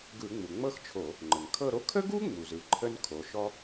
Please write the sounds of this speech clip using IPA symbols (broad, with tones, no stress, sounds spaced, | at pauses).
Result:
ɡ ɯ˧˩˧ ŋ͡m u˩ ŋ͡m ɤ˥ x t͡ʃʰ o˧˩˧ | ŋ͡ǃ ə˩ ŋ kʰ ɤ˦˨ ɾ o˥ kʰ ə˥ ɡ u˥ ŋ͡m u˩ z ɯ˩˧ ǃʰ ə˥ n kʰ o˩˧ ʃ ɔ˥